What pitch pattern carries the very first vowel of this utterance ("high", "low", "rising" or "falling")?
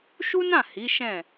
high